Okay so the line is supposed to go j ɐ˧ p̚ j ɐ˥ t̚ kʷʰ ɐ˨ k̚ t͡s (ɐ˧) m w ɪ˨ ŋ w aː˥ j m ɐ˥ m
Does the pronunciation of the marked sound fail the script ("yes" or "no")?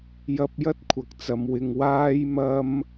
yes